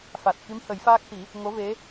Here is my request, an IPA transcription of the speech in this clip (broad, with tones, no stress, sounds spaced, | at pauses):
f a˨˩ t̚ k i˧˥ m h ə˨˩˦ j f aː˦˥ k̚ t̪ i˨˩˦ | ŋ o˧˥ v e˧˥